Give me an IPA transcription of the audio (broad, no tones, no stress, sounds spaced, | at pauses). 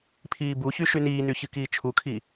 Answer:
pʰ iː b u ç y ʃ y n iː n y ç ɨ k iː t͡ʃʰ u kʰ i